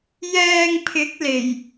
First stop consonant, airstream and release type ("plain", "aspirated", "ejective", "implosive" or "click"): aspirated